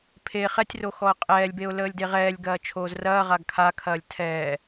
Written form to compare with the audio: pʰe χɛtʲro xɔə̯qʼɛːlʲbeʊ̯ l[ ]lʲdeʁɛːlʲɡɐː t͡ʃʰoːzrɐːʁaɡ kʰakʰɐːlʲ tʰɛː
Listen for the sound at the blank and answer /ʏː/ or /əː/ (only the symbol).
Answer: əː